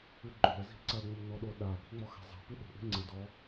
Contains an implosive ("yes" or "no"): yes